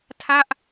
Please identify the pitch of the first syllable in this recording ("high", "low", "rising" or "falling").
falling